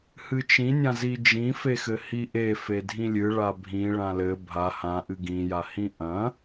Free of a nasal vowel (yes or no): no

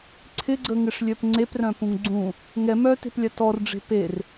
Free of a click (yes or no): no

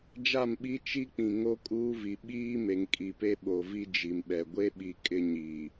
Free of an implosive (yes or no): no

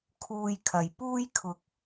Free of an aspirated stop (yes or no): no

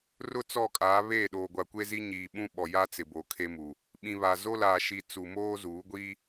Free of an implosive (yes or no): no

